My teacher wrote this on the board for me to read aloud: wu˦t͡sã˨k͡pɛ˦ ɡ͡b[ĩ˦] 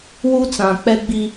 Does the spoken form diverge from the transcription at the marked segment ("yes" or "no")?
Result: yes